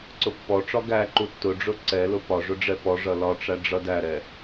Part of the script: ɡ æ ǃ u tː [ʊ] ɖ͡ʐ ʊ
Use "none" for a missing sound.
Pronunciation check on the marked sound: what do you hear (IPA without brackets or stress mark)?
ʊ